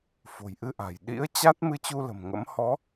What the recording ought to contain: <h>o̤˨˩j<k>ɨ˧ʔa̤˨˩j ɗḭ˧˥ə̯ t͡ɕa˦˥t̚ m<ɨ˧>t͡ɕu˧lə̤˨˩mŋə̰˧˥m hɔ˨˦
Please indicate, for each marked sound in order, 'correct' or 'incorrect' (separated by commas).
incorrect, incorrect, correct